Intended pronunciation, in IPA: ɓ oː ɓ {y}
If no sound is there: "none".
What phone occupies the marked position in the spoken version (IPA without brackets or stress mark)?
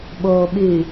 y